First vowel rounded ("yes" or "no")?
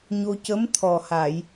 yes